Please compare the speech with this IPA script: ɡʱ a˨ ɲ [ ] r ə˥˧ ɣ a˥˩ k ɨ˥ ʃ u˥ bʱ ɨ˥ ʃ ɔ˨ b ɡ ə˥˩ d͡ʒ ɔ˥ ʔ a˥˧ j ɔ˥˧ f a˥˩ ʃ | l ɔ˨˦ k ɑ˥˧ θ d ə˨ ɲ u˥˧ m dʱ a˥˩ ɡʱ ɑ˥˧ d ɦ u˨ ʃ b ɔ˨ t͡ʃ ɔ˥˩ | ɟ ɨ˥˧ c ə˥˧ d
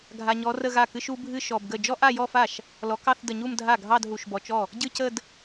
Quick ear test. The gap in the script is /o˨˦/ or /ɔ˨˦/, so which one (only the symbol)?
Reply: ɔ˨˦